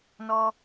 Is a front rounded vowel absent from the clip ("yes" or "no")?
yes